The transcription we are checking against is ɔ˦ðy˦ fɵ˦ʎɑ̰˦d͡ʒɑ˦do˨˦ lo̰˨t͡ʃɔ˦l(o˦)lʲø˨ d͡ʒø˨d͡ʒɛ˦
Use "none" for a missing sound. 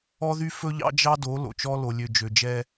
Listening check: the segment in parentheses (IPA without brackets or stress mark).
o˨